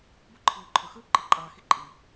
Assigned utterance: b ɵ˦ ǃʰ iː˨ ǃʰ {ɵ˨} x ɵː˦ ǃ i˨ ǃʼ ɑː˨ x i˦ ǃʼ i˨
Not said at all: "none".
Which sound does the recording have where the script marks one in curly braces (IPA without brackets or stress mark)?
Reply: ɵ˨